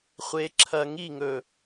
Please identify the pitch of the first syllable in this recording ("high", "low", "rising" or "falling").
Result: low